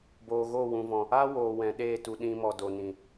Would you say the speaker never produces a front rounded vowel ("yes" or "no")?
yes